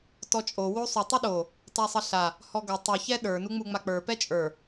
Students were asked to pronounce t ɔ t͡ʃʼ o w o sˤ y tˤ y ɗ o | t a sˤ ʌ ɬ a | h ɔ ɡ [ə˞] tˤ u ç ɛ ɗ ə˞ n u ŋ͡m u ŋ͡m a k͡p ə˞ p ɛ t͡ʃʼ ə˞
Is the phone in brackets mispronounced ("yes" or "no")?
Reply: yes